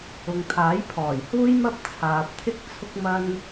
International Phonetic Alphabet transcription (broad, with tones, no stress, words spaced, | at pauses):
ʊ˨ŋt̪ʰaː˨˥j pʰɔː˨˩jhuː˥jmɐ˥p̚ t͡sʰaː˨p̚t̪ʰɪ˥k̚ t͡sʰʊ˥k̚mɐ˥n